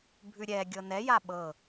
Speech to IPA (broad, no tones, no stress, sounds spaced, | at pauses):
bʱ ʉ ɾʲ ɛ ɡʲ ɤ n ɛ j a ɓ ɤ